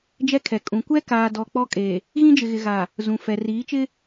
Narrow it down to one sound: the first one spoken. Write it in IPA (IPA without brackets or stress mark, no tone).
d͡ʒ